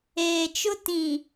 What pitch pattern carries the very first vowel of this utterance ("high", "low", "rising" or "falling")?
low